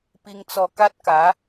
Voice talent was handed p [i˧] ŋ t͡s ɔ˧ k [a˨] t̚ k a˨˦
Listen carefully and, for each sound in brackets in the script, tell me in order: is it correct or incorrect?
correct, incorrect

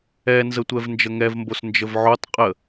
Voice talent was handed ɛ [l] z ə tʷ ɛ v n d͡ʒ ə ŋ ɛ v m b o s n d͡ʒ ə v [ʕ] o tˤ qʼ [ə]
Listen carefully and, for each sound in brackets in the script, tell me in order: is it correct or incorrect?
incorrect, correct, correct

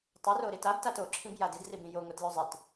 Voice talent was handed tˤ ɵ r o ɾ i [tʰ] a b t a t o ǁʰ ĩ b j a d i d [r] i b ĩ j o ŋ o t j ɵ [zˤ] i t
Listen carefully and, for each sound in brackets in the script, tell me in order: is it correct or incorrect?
incorrect, correct, correct

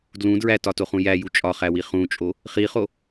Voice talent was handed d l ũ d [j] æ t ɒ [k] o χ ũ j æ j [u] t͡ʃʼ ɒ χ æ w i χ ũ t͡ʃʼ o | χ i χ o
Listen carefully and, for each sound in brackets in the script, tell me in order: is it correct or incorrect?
incorrect, incorrect, correct

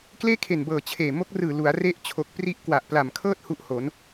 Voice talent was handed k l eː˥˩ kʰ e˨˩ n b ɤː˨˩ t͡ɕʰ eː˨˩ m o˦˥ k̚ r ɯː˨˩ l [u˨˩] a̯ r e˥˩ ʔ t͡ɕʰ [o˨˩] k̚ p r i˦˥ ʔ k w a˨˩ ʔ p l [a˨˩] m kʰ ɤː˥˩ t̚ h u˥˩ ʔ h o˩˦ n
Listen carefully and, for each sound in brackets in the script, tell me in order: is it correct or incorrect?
incorrect, correct, correct

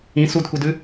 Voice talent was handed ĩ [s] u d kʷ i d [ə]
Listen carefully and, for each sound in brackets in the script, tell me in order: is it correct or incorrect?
correct, incorrect

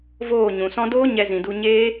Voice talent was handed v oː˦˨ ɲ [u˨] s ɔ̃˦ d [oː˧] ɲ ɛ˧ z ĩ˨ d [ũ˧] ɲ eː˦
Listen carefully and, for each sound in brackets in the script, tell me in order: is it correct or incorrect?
incorrect, incorrect, incorrect

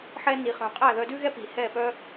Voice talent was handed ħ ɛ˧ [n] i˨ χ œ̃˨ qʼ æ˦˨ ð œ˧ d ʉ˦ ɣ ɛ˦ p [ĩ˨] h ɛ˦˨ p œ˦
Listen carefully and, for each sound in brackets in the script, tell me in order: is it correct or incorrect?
correct, incorrect

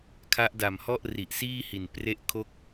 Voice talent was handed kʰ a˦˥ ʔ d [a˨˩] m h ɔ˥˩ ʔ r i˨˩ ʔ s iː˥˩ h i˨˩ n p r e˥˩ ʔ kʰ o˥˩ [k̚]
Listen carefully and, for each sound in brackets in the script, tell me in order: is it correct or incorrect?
correct, correct

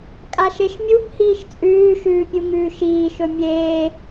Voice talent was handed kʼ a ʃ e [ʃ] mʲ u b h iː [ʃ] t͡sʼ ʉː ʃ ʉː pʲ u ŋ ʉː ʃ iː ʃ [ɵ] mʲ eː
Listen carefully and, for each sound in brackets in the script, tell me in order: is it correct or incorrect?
correct, correct, correct

